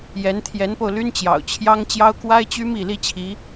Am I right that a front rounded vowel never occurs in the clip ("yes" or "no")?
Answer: no